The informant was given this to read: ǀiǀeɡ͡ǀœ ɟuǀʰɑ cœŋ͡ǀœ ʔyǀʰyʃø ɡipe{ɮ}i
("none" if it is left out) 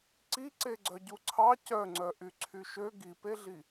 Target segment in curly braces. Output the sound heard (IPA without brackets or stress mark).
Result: ɮ